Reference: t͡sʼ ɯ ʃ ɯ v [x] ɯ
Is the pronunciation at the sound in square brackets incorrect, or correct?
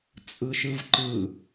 incorrect: ǃ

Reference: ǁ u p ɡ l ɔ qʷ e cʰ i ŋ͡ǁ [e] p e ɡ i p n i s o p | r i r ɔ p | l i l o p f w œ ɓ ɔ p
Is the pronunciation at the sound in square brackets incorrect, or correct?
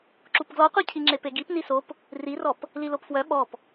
correct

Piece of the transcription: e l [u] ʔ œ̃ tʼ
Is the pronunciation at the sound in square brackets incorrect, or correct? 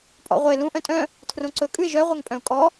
incorrect: ũ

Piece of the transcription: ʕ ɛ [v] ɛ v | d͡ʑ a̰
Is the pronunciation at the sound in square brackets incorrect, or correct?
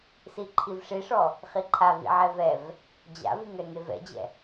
correct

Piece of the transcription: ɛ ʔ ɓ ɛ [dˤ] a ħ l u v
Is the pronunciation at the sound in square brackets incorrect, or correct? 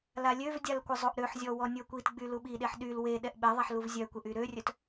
incorrect: ðˤ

